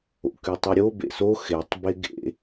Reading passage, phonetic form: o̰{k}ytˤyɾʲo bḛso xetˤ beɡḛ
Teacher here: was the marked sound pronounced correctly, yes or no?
yes